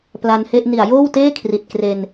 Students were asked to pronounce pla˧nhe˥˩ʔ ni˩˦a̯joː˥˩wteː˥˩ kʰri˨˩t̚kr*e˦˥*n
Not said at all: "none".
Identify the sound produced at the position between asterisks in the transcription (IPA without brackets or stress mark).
e˧